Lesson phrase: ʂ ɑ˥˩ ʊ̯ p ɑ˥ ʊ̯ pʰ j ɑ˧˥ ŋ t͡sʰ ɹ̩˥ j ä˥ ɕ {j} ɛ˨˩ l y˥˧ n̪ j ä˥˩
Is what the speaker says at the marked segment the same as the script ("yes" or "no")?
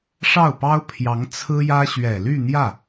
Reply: no